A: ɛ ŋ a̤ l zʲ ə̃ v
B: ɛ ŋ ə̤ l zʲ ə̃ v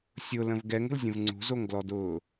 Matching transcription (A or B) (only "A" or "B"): B